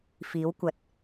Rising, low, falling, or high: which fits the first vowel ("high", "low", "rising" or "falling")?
rising